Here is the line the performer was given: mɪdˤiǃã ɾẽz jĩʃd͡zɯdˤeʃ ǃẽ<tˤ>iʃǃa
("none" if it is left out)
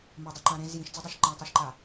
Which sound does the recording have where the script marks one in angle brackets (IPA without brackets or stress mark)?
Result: tˤ